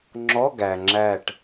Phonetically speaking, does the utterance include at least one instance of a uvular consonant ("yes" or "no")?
no